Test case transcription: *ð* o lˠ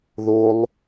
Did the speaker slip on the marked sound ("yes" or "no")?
no